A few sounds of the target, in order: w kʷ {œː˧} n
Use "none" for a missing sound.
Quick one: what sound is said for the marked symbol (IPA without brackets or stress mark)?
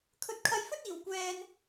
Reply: ɛː˧